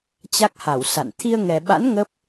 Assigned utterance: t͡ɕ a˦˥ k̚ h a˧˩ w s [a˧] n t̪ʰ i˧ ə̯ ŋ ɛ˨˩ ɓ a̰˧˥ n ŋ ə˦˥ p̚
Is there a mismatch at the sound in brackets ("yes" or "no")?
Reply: yes